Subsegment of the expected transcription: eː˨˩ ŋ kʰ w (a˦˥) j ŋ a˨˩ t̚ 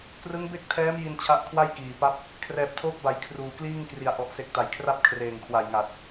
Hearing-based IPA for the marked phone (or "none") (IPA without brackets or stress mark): a˨˩